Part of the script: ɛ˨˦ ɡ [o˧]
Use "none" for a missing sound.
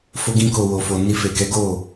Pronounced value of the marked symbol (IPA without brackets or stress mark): o˦˨